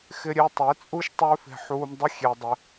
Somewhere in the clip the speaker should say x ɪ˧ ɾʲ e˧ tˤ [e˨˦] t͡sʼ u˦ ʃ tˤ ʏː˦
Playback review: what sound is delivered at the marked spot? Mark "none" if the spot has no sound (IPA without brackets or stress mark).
e˨˦